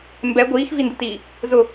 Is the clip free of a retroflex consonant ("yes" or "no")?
yes